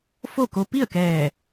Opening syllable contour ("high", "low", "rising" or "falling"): falling